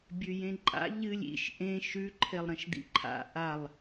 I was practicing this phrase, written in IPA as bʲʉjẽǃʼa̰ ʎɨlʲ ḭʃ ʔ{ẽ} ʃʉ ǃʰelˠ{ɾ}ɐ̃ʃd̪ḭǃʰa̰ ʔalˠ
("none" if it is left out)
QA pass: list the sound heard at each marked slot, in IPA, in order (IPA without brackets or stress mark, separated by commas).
ẽ, ɾ